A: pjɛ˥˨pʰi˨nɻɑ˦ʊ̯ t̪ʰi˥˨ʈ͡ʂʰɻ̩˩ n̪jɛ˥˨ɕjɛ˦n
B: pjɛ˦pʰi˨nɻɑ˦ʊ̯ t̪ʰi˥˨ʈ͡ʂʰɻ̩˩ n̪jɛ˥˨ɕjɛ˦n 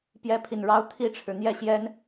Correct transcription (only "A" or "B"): B